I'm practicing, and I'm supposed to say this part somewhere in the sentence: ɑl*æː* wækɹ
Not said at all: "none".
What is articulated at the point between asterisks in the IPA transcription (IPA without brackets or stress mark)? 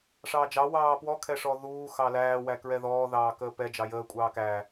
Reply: æː